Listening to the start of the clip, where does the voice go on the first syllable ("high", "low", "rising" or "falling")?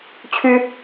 high